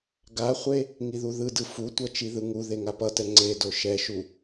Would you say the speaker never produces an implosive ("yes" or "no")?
yes